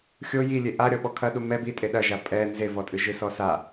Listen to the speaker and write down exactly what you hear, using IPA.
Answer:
xʲ o j i lʲ e ʔ a ɾʲ ɔ ɓ ɔ kʰ ɐ ɗ u m ɛ b i tʼ e ɗ ɐ ʒ a pʼ ɛ n z e v ɔ tʼ ɨ ʒ ɨ s ɔ s a

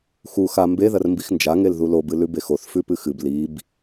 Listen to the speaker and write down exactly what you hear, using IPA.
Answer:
x u x a m b e ð ɐ r m b i x n d͡ʒ a ŋ e l ð u l o b ɨ l ʉ b e x o θ f ʉ p ɨ x ɨ b l i b

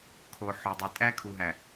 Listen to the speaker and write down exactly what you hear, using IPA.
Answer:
kʰ o˨ ħ o˨ dˤ i˨ tʼ æ˦ kʰ u˨ ɦ æ˨

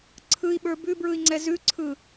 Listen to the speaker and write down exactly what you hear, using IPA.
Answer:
ǀʰ ɯ i̯ ɓ ə˞ b ʉ b ɹ ɯ i̯ ŋ͡ǀ ɛ z ʉ ǀʰ ɯ

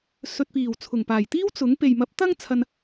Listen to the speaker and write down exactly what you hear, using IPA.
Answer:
s ɵ˨ t̚ p iː˨˩ w t͡sʰ ʊ˨˩ ŋ p aː˨˩ j t̪ iː˥ w t͡s ʊ˨˥ ŋ p e˨ j m ɐ˨˥ p̚ t̪ ɐ˥ ŋ t͡sʰ ɐ˧ n

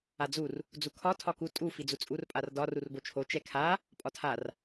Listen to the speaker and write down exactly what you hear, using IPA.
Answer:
a d͡z u r | d͡z u kʰ ɒ tʰ ɒ k u tʼ u f i d͡z u t͡sʼ u r pʼ a r d ɒ r u r b o t͡ʃʰ o t͡ʃ ɛ kʰ a | pʼ ɒ tʰ a r

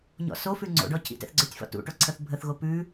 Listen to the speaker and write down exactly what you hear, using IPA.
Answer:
ɲ ɔ̰ s o f ʉ ŋ͡ǀ o̰ ɖ ɔ cʰ ḭ t ɛ̰ θ ɡ͡ǀ œ tʲ f ɔ̰ t ṵ ʈ o ǀʰ ə θ bʱ ə θ ɣ o p ʉ

